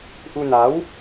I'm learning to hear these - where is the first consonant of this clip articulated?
throat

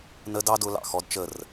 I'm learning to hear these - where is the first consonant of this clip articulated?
tongue tip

